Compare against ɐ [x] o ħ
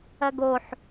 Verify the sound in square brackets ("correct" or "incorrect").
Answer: incorrect